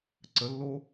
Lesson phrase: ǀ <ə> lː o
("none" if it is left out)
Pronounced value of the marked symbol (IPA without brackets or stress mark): ə